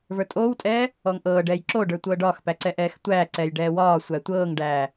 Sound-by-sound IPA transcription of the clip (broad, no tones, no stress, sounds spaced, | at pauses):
v ə˞ tʼ oː w tʼ ɛː | ɔː ŋ ʔ ɤː ɖ ɛː j ǁ o ɖ ə˞ tʷ ɤː ɖ ɒː x p æ ǀ ɛ ʔ ɛː x tʷ æː ǀ ɛː j ɖ ɛː w ɒː sʷ æ tʷ ɤː ŋ ɖ æː